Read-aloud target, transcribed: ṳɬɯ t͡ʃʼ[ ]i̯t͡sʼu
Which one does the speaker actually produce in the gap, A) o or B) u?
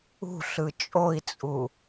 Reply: A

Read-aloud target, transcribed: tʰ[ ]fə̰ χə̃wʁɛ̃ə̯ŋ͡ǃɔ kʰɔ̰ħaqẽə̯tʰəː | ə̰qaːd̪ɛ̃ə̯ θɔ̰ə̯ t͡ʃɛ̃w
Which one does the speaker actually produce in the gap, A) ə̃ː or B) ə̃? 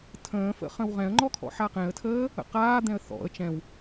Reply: A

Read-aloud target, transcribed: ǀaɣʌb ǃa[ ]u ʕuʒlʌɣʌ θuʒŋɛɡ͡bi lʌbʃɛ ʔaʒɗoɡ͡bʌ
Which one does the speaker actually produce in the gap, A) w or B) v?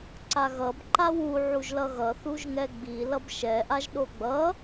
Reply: A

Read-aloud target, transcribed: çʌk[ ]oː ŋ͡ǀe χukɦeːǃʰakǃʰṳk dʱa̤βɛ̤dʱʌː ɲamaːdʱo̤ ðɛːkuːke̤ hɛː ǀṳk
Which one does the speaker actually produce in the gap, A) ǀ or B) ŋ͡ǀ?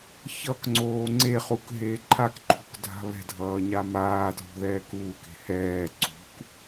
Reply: B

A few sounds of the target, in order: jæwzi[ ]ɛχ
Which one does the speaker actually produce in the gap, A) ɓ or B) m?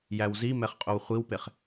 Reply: B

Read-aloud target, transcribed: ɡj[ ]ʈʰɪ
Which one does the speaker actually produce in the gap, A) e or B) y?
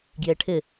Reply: A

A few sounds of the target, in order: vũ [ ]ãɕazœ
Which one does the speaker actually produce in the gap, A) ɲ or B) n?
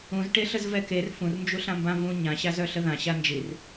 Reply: A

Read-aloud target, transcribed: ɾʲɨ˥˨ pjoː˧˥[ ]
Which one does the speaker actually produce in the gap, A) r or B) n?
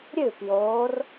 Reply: A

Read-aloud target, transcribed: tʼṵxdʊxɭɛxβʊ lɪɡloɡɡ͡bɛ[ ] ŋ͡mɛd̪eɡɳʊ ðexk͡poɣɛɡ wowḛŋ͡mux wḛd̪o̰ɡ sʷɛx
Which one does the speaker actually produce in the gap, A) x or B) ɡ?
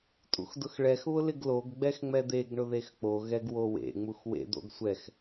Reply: A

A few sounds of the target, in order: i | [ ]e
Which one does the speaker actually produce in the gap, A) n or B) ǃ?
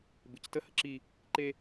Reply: B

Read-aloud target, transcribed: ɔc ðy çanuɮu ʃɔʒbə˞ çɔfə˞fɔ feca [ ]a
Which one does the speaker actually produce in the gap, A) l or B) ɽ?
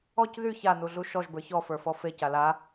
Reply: A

